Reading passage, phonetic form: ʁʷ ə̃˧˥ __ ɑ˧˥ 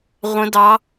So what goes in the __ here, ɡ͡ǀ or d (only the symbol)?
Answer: d